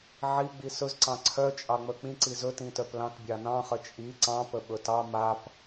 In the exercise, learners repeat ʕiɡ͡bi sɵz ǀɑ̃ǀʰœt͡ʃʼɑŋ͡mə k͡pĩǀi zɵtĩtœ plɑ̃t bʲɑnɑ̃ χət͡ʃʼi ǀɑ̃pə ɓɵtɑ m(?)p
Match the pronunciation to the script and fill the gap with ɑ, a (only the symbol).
a